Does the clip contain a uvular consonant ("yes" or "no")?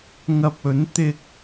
no